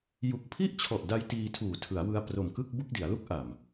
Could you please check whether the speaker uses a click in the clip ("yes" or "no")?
no